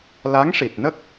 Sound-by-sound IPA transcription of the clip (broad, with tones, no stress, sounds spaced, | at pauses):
l a˧˥ ŋ ʂ i˨˩ t̚ n ə˦˥ k̚